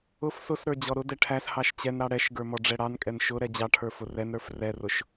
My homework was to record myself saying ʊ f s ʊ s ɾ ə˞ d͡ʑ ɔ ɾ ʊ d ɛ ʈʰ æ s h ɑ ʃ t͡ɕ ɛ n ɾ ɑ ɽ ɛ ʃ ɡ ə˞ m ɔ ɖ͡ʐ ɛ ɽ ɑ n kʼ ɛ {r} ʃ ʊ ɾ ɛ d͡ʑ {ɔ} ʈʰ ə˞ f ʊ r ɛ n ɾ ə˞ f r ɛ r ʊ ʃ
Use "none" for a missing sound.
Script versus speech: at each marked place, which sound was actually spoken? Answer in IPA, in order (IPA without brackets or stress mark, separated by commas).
n, ɑ